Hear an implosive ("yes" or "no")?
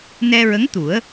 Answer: no